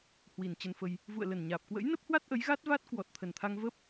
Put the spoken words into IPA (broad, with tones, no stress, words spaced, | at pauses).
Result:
hwi˨˩nt͡ɕə˧nfə˧j | vṵ˧˨ə̯lə˨˩nɲaː˨˩p̚ kwə̰˧˥jnə˦˥p̚hwa˦˥t̚ ʔə˨˦jɣa˦˥t̚va˦˥t̚ kwɔ˨˩t̚t̪ʰə˨˩nt̪ʰa˧ŋ və˦˥p̚